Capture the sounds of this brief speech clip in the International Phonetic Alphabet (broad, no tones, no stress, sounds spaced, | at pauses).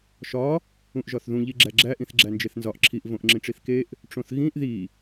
ʃ ɒ | ũ ʔ ʒ ɒ θ ð ũ ʎ i ɡ͡ǁ æ ɡ͡ǁ æ ʔ ĩ θ ɡ͡ǁ æ n d͡ʒ e θ n z ɒ ʔ ǁʰ i ʔ v õ ʔ ŋ͡ǁ ĩ ʈ͡ʂ i θ k e ʔ | ʈ͡ʂ õ θ ɣ ĩ ʔ ð i